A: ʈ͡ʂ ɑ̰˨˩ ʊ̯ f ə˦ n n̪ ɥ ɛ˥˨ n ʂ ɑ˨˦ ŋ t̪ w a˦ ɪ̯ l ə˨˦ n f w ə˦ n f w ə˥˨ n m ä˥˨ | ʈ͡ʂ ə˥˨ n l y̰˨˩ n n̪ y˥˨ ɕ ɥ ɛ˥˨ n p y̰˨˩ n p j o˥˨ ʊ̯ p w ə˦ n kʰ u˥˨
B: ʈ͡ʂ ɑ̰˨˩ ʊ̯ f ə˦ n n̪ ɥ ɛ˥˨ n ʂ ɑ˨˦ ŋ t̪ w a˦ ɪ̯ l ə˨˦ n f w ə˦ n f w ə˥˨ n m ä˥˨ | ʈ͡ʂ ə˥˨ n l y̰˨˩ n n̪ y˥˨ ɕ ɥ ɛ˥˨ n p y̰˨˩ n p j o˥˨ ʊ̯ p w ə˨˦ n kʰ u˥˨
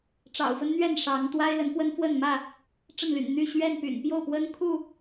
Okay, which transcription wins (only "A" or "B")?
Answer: A